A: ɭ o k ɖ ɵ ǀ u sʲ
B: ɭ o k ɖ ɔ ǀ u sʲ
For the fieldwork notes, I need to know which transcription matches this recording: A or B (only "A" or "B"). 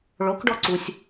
B